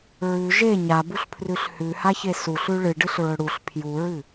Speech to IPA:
ɹ ʉ ʒ e ɲ a b u ɬ pʰ r ʉ ɬ h ʉ h a ç e s u ɬ ʉ ɭ ɨ ɖ ɨ ɬ ɹ ɵ ɽ u ɬ pʰ j u ɹ ɨ

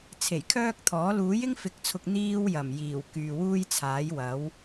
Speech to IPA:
t͡sʰ e˨˩ j kʰ œː˥ k̚ t̪ʰ ɔː˨˥ l uː˨˥ j ɪ˥ ŋ f ɪ˨˥ k̚ t͡sʰ ʊ˨ k̚ n̪ iː˥ w j ɐ˨˩ m j iː˨˩ w k yː˨ w uː˥ j t͡sʰ aː˨˥ j w ɐ˨˥ w

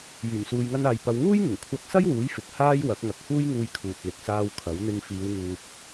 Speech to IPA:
j yː˨˩ m s uː˨ j ŋ ɐ˧ n aː˨ j p ɐ˨˧ w ŋ uː˥ j ŋ ɪ˨˩ ŋ kʷʰ ɐ˧ k̚ s ɐ˥ j w uː˨˥ j f ɪ˨ k̚ h aː˥ j w ɐ˨˥ k̚ ŋ ɐ˨˥ k̚ h uː˥ j ŋ uː˧ j kʰ uː˨ t̚ l ɪ˨ k̚ s aː˧ w kʰ ɐ˨˥ w n̪ ɪ˧ ŋ f iː˨˧ w ŋ uː˨ p̚

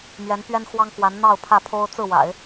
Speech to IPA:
m ɥ ɛ˧˥ n p ɥ ɛ˥ n x w ɑ˥ ŋ k w a˧˥ n n̪ ɑ˥˧ ʊ̯ pʰ ä˥˩ pʰ o˥ ʊ̯ t͡s ɹ̩˥˩ w a̰˨˩˦ ɪ̯

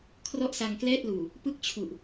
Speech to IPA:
kʰ r ɔ˥˩ ʔ s a˧ ŋ k l ɛː˥˩ t̚ l uː˨˩ | p ɯ˥˩ k̚ t͡ɕʰ u˨˩ ʔ

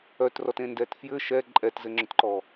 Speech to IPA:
œ t r ɔ t ẽ n d ɛ t f j ɘ ʃ ɛ ǃʼ ɛ t z ɘ ŋ͡ǁ ʊ t ǃ ɔ

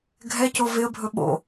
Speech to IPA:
ɡʱ ɛ c o v ɪ ə̯ bʱ ɵ ɓ o̰

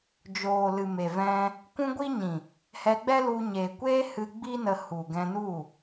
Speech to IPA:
d͡ʒ oː˨ l ɨ˨ m e˨ v ɛ̃˧ | kʷ ũ˧ ɡʷ i˧ ɲ ĩ˨ | h ɛ˧ ɡ͡b ɛ˦ l u˧ ɲ e˨ kʷ eː˦ h ɨ˧ ɡ͡b i˧ n ə˨ h u˨ ɡ ɛ̃˧ n u˦˨

